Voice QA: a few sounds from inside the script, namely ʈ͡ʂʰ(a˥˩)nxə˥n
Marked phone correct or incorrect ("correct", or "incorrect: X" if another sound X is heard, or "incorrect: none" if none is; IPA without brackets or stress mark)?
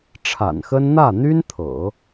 incorrect: a̰˨˩